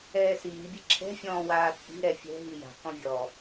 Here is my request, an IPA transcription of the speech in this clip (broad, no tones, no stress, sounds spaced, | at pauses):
ɛː s iː bʲ ɛ̤ ǁʰ ɛ̤ fʲ ɔ̃ː w aː t͡sʼ i̤ ɾ ɛ fʲ ɛ̤ ɦ i j a̤ k ɔ̃ vʲ ɔ